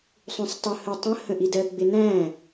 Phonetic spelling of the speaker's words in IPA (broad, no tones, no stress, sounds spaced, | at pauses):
sˤ ũ sˤ tˤ ʊ h ə tˤ ə̃ h ə̃ ʔ i d ɜ ɡ͡b ɪ n æ̃